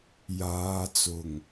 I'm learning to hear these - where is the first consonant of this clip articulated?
palate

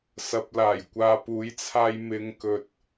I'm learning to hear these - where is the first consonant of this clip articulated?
tongue tip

